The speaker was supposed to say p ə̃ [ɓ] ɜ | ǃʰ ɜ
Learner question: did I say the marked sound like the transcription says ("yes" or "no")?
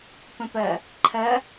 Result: no